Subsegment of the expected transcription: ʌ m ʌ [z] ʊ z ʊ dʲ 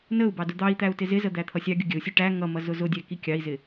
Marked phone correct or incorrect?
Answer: correct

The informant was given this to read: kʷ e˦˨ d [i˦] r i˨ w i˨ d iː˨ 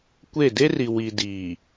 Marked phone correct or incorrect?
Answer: incorrect: e˦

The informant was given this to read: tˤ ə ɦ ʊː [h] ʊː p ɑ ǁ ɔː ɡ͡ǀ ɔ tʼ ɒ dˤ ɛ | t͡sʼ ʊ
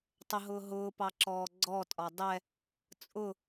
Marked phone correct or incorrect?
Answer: incorrect: ɦ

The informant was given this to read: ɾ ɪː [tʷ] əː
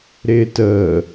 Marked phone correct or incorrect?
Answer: incorrect: t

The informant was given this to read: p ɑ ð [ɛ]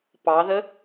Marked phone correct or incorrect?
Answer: incorrect: ə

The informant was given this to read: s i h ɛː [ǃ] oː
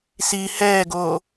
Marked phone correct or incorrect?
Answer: incorrect: ɡ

